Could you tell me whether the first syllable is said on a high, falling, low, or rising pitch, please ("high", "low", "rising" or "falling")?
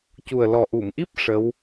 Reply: low